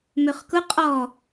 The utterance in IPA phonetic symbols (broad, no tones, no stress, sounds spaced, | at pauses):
m ø χ k ʊ qʼ ɔ